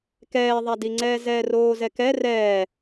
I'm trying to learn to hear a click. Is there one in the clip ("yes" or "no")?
yes